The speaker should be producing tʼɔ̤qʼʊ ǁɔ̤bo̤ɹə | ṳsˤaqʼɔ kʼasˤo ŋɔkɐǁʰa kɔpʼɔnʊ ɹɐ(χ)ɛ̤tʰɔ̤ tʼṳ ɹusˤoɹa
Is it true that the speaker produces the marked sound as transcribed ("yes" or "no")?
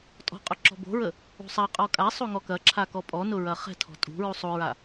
yes